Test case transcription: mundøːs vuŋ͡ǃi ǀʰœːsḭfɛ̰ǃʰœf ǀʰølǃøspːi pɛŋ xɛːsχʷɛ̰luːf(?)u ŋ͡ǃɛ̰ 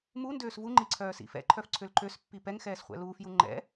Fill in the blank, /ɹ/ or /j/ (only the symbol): j